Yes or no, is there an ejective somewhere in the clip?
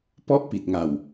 no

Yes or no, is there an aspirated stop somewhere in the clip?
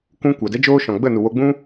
no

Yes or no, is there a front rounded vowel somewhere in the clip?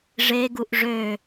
yes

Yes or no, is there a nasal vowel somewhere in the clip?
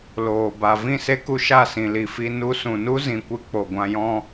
yes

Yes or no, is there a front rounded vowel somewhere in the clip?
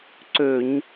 yes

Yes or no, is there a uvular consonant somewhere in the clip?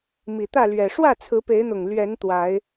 no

